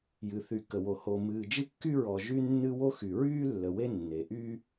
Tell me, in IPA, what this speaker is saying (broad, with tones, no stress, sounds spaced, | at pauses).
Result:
j ɨ˩ θ y˩ k ə˩ w o˩ h o˩ m ɨː˩ d͡ʒ ɨ˦ kː y˦ ɹ ɔ˩ ʒ y˦ nː ɨ˦ w o˦ x y˩ ɹ yː˦ lː ə˩ w e˦ nː e˩ ʔ yː˦